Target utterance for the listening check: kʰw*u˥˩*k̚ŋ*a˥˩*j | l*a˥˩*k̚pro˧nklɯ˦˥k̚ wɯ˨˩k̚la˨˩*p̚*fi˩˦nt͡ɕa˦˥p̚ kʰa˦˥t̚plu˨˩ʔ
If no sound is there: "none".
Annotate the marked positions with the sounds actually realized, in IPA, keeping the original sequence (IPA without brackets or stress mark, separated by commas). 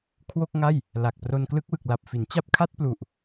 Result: o˥˩, a˥˩, a˨˩, p̚